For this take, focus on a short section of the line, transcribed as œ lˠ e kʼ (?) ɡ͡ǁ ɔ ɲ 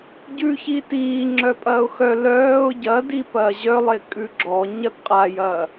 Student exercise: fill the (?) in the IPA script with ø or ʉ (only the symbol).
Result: ʉ